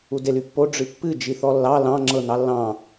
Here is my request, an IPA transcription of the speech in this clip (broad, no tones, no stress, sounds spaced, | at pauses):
u d e l y pː o ɖ͡ʐ ɨ pː ɨ d͡ʒ i θ ɔ lː ɑ l ɑ̃ ŋ͡ǁ ɤ n ɑ lː ɑ̃